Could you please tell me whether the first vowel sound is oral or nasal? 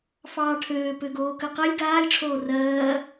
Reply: oral